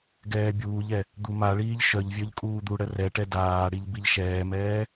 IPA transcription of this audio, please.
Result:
ɡ ɛː bʲ uː ʎ ɛ | d̪ u m a ɭ iː ʎ ʃ œ ʎ vʲ œ ʎ kʼ uː d̪ u ɽ ə r ɛ ʈ ɛ d aː ɽ i ʎ b i ʎ ʃ ɛː m ɛː

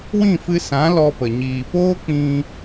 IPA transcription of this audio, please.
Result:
w ĩ˦˨ f ɨ˧ s ã˨˦ l ɔ˧ p ə˨ ɲ iː˨ p oː˦ k͡p ĩ˧

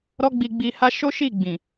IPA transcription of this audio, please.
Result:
ɾ ɔ˧ ɡ͡b i˨ ɡ͡b i˧ h a˦ ʃ o˦ ʃ i˦˨ ɡ͡b ĩ˨

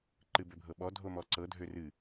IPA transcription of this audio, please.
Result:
ǃ ɨ b ø bʱ ɤ ɓ ɔ dʱ o m ɔ ǀ ɤ dʱ ø r ɨ

